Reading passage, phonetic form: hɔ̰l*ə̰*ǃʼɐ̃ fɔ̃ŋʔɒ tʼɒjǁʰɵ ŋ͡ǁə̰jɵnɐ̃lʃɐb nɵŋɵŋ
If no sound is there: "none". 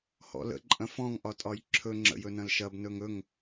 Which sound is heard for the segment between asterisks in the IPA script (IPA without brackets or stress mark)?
ə̰